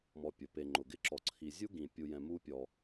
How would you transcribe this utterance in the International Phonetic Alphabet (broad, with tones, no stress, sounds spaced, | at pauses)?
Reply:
m ɔ˨ pʲ ʊ˩ p e˨ ŋ͡ǃ ʊ˩ ɡ ɪ˥ ǁ ɔ˨ ǀʰ i˨ zʲ u˥ ɡ ĩ˨ pʲ u˨ j ɛ̃˨ m u˦ pʲ ɔ˨